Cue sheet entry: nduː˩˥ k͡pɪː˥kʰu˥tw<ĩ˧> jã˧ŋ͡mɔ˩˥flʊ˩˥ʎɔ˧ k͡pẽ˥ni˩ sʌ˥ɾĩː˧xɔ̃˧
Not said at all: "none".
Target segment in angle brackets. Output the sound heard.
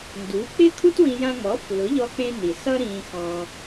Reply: ĩ˧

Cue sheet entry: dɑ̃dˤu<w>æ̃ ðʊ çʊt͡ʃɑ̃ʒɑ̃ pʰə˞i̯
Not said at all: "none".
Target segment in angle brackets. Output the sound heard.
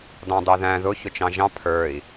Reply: ð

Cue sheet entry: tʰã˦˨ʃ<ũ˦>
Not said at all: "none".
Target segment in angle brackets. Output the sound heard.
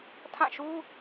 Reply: u˦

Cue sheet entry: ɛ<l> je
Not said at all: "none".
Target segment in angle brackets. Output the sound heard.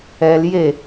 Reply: l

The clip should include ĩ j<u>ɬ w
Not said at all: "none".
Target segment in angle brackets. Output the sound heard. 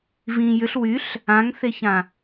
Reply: ʏ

